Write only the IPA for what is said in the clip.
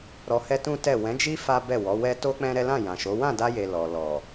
ɾ ɔ˧ h ɛ˦ t ũ˦ t ɛ˦˨ w ɛ̃˨˦ d͡ʒ i˦ f a˦ b ɛ˦˨ w ɔ˨˦ w ɛ˦ t o˦ k͡p ɛ̃˦ ɾ ɛ˦ l ã˦˨ j ã˨ ʃ o˨˦ w ã˦˨ d a˧ j e˨ l ɔ˨ l ɔ˨

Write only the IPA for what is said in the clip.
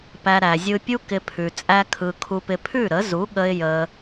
p æ˧ ɾ æ˨ zʲ ɯ˧ pʲ u˦ k ɪ˧ pʰ ʉ˨ t͡sʼ æ˧ kʰ ɯ˨ kʰ u˧ p ɪ˧ pʰ ʉ˦˨ ɾ ə˨˦ z u˨˦ ɠ ə˧ ɪ̯ j ə˧

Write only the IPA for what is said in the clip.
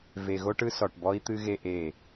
v e˨ ɣ o˦ ʈ ɯ˦ s ɔ˨ ʈ b ɔ˦ i̯ t̪ ɨ˦ ɣ e˦ ʔ e˦˨

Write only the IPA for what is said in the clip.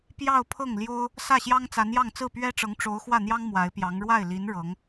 p j ɑ˥˧ ʊ̯ pʰ ɤ˥˩ ŋ l j o˥ ʊ̯ | s ä˥˩ ɕ j ɑ˥ ŋ t͡s a˧˥ n j ɑ˥˧ ŋ t͡s ɹ̩˥˩ p ɥ ɛ˥ ʈ͡ʂ ɤ˧˥ ŋ ʈ͡ʂ o˧˥ ʊ̯ x w ä˥˩ n̪ j ɑ˥ ŋ m w a˧˥ ɪ̯ p j ɑ˧˥ ŋ ɻ w a˥˩ ɪ̯ l i˧˥ n ɻ ɤ˧˥ ŋ

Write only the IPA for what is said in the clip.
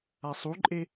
a sˤ u ǃʼ e

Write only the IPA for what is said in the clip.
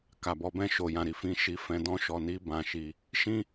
k a˨ b ɔ˧ b ɛ̃˧ ʃ o˨ j ã˨ ɾ i˧ f ĩ˧ ʃ i˧ f ɛ̃˧ d ɔ̃˦ ʃ ɔ˧ n i˦ b ã˧ ʃ i˧ | ʃ ĩ˦

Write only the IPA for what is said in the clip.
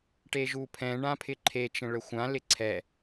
ʈ e ʒ u pʰ ɛ̃ ɳ ã pʰ ɪ ǃʰ e t͡ʃ ə̃ ɭ ə xʷ ã l ɪ ǀʰ ɛ

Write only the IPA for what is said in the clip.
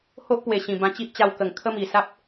h o˦ ʔ p w e˨˩ ɕ ĩ˨˩ b ã˧ t͡ɕ i˦ ʔ t͡ɕ a˧ w k ə˨˩ ŋ kʰ ə˦ m i˨˩ s a˦ p̚

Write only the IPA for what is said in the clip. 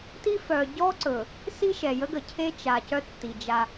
t i˦ f œ˨ ɟ ɔ˦ ǀ ɵ˨ | s i˦ ʃ ɛ˨ j ə˦ ɡ ə˨ cʰ e˦ t͡ʃ a˨ c œ˦ tː i˨ d͡ʒ a˦

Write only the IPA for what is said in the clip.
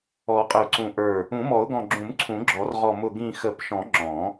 ɔ˨˩˦ qʼ ə˧˩ ʊ̯ ǀ ũ˧˩ ʔ ə˞˧˩ | ũ˨˩˦ m ɔ˨˩˦ ʊ̯ ɡ ɔ̃˧˩ ɡ͡ǁ ũ˨˩˦ m ǀʰ ũ˨˩˦ ɡ͡ǁ ɔ˨˩˦ r ʁ ɔ˧˩ m ʊ˧˩ ɡ ĩ˧˩ x ə˨˩˦ p ʃ ɔ̃˨˩˦ ŋ͡ǁ ɔ̃˨˩˦

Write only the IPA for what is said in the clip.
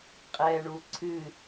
qʼ ɛ ɳ u ǀʰ ɨ

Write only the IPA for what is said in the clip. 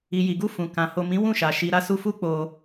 i˨ j i˨ ɡ u˧ f ũ˨ k ã˨ h o˨ m ĩ˨˦ w ũ˦˨ ʃ a˨ ʃ i˨ ɾ a˧ s u˧ f u˦ k͡p o˧

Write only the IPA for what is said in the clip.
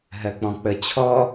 ɦ ɜ k͡p ɔ̃ k͡p ə t͡ɕʰ ɔ

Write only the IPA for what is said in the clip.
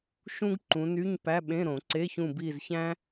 ʃ ũ˥ ɡ ǃ ũ˨˦ n y˧˥˧ ɲ p æ˧˥˧ ɓ ẽ˧˥˧ ɾ õ˨˩˦ ǀ e˧˥˧ ç ũ˦˨ b i˦˨ z ç æ̃˥

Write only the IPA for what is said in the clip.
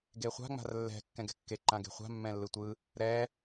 ɡ e χʷ a̤ ŋ͡m a̤ r lː ɛ̤ kː ɛ̃ ɡ ɛ̤ kː e ǃ ã ɡ e̤ χʷ a̤ mː ɛ̃ lː ɯ tʷ ɯ | ɾ ɛ

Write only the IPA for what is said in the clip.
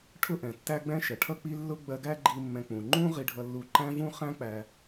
ʈʰ ʊ˥ ʔ ɛ̃˩ tː æ˥ ɡ͡b ɛ̃˥ ʃ ɛ˩ ʈʰ ʌ˥ k͡p i˥ lː ʊ˥ ɡ͡b ɜ˧ ɡ æ˥ ɡ͡ǃ i˧ mː ɛ̃˧ k͡p ũ˩ ŋ͡ǃ ũ˥ ʁ i˧ ɖʱ ʌ˧ lː u˧ ǃ æ̃˥ v ũ˥ χ æ̃˥ k͡p æ˧

